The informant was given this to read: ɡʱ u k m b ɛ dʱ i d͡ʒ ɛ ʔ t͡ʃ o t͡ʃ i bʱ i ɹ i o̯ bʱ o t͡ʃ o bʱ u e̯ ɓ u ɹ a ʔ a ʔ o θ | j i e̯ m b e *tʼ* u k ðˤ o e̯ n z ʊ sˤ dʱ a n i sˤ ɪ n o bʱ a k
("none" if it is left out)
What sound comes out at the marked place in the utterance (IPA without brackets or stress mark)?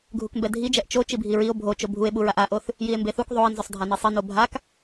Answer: θ